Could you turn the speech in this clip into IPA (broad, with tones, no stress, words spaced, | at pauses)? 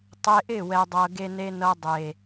tˤe˧ʔɪ˦˨wɛ˨dˤɤ˨ ɡe˧ne˧nɤ˧ dˤe˨